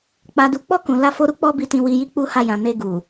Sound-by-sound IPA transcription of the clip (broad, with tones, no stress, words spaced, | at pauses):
k͡pa˨du˨k͡pɔ˧ kũ˨ la˧fo˧ɾu˦ k͡pɔ˦bi˧tĩ˧ wi˧ji˦ k͡pu˦ha˧jã˨ ne˧ɡu˨